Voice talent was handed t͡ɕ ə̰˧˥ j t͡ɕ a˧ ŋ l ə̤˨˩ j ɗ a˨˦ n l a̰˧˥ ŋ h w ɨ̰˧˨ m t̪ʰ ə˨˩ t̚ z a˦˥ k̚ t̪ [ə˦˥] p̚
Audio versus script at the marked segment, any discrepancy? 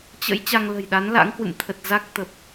yes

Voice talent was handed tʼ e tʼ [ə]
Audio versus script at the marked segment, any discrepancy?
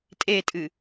yes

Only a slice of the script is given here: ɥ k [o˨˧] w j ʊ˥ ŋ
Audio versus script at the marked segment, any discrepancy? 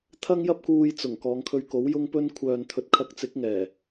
yes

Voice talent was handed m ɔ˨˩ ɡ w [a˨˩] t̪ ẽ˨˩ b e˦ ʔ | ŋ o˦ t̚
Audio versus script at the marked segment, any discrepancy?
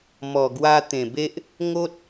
yes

